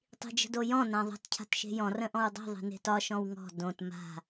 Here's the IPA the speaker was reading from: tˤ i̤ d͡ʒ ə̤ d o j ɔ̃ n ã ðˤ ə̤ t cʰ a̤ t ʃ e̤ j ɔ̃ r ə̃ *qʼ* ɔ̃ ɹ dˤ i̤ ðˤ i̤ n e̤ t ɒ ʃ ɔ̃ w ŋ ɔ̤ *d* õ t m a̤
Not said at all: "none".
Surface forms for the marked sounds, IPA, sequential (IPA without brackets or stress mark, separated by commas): ʔ, d